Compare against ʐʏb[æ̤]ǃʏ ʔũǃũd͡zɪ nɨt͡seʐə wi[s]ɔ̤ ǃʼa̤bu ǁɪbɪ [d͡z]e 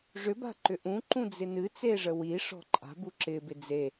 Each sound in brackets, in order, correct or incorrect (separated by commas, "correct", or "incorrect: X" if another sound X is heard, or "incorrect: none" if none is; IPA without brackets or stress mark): incorrect: a̤, incorrect: ʂ, correct